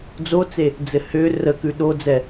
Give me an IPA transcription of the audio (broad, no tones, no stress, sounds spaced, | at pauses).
d͡z o t͡s e | d͡z ɘ h ʏː r ə k ʉ ɗ o d͡z ɛ